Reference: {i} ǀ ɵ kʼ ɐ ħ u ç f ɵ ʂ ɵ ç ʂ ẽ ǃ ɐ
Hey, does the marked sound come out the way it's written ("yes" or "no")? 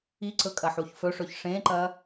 yes